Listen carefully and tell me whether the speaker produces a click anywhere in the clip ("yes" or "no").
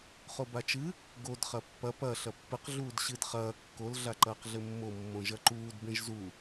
yes